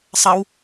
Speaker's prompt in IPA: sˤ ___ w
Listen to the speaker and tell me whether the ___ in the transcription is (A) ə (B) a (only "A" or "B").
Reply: A